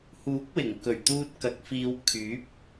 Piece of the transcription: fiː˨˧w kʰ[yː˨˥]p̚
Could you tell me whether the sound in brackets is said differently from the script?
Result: no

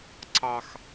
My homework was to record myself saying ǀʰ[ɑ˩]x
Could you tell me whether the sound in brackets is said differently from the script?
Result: no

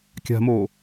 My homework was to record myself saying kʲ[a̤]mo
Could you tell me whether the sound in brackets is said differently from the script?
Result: no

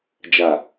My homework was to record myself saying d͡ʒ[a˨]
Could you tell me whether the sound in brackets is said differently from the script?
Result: no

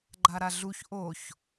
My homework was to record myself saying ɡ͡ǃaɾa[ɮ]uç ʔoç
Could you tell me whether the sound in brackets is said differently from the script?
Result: no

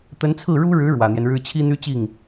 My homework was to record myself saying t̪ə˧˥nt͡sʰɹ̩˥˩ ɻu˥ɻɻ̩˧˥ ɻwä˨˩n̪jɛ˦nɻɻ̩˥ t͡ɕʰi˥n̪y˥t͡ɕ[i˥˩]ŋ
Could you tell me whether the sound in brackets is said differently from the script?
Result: no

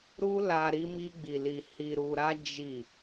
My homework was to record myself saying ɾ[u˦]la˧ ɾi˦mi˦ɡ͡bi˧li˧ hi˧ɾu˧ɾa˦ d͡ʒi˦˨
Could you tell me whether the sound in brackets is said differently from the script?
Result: no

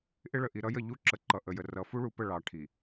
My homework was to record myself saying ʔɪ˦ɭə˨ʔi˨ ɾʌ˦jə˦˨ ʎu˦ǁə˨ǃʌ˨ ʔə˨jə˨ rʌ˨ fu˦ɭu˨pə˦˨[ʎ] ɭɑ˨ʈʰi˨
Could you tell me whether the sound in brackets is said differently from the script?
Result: yes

